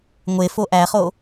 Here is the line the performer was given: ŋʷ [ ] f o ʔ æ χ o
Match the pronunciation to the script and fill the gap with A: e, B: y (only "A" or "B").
A